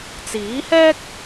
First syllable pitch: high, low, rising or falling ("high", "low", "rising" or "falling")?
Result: rising